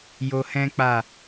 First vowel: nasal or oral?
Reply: oral